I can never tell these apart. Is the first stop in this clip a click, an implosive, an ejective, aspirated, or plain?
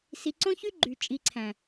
click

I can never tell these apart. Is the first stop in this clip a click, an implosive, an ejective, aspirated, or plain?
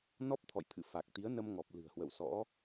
plain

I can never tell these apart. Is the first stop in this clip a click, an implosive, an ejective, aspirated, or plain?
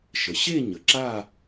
click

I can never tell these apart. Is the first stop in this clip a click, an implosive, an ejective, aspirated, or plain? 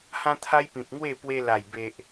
aspirated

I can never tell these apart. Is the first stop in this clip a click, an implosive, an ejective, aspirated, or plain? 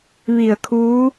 aspirated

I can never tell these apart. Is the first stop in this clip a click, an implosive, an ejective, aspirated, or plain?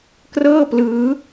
plain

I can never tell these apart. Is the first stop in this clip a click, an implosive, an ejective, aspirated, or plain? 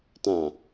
plain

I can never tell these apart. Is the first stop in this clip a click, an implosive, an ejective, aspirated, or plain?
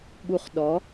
implosive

